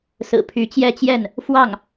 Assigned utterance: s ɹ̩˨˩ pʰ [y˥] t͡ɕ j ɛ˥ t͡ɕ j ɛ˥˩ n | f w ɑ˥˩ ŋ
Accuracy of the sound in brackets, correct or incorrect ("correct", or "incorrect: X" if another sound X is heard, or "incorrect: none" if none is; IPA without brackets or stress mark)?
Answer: incorrect: y˧˥